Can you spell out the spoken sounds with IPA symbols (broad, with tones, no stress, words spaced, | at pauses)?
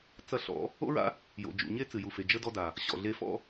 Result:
t͡sɐ˧ɬɔ̰˨˦ | o̰˦ɹa̰˦ | jo̰˨d͡ʒṵ˨ ɲe˧ t͡sɨ˨ju˨fe˨ d͡ʒə˦dɔ˦da˨ | ɕɔ̰˨ɮe˧fɔ̰˦